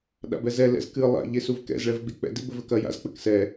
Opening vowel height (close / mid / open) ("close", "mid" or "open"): open